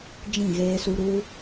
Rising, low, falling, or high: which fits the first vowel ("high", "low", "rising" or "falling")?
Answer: falling